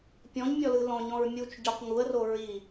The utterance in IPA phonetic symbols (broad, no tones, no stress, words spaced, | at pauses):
pʲɔ̃ɲmʲɔlɯ lɔ̃ɲɔ̃ɹmʲut͡ʃ ɟɔq ŋuə̯ro ɹi